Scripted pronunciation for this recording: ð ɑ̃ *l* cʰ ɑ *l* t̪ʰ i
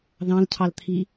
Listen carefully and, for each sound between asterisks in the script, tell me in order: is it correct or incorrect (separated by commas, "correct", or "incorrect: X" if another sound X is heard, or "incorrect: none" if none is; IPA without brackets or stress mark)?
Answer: correct, correct